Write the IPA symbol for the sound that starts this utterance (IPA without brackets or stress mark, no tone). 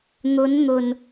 n̪